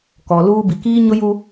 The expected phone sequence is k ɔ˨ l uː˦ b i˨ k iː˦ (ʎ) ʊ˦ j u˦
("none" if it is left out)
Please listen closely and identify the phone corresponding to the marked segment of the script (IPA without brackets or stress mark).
ɲ